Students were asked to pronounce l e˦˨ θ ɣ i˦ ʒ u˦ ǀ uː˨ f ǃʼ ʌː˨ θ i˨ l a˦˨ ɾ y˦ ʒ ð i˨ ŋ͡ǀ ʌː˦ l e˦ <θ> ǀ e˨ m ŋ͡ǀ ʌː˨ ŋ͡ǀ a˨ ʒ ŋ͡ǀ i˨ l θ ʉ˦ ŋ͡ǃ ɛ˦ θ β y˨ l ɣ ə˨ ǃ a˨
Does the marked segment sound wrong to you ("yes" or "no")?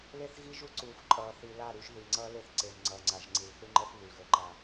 no